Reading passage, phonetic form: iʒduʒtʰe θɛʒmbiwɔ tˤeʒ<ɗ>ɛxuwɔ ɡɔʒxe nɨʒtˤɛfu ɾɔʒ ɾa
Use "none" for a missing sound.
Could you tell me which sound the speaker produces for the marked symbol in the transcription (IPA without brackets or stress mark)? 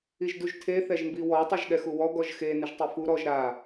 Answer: ɠ